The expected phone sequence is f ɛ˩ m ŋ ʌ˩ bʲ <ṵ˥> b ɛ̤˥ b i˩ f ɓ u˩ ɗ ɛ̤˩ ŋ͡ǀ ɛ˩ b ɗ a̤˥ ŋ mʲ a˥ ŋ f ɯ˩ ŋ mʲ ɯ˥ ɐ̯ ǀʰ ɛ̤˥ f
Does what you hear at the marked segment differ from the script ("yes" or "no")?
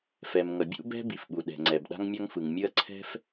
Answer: no